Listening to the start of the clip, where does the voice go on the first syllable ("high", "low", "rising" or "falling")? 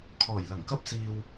low